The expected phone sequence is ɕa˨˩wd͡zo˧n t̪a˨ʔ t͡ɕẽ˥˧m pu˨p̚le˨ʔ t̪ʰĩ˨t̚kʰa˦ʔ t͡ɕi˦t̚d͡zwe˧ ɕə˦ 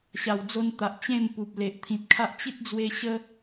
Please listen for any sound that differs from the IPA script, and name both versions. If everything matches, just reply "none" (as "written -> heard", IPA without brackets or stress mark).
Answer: none